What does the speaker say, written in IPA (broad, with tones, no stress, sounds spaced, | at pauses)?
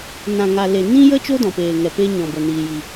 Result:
n ã˨ ŋ a˨ l e˨ n ĩ˦ j ə˦ t͡ʃ o˦ d ɔ̃˨ p eː˨ ŋ ɛ˨ p e˦ ɲ ɔ̃˨ b ə˨ n iː˨ j i˨